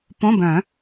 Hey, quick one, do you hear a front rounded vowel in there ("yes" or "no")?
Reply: yes